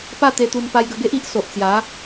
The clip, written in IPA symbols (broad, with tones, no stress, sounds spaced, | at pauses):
p a˥˧ t̪ e˧ t̪ u˧ n p a˧ j ɡ ə˧ ɡ e˦ ʔ i˦ ʔ s o˨ ʔ t͡s j a˨˦